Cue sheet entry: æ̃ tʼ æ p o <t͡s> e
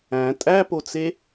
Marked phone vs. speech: correct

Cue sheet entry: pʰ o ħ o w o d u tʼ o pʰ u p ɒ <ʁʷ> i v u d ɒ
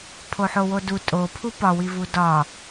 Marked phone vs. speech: incorrect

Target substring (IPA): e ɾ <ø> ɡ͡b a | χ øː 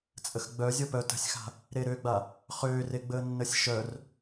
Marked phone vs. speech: correct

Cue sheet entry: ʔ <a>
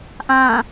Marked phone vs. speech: incorrect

